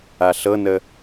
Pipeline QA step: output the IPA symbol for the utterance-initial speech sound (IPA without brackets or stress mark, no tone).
a